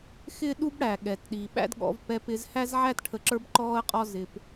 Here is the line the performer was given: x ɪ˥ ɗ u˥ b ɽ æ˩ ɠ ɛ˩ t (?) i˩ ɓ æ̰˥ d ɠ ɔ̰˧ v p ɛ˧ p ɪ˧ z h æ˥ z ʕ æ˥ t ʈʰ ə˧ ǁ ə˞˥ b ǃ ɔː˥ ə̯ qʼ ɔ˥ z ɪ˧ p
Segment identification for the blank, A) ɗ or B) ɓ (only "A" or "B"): A